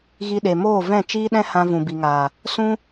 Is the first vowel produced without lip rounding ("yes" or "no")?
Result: yes